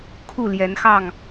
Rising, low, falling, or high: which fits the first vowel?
falling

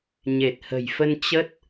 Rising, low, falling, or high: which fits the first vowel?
low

